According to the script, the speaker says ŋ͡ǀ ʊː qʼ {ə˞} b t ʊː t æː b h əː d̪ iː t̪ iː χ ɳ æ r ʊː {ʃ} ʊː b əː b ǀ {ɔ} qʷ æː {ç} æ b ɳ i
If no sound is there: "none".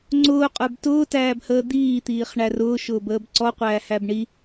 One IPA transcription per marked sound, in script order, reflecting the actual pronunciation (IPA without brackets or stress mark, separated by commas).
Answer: ə˞, ʃ, ɔ, h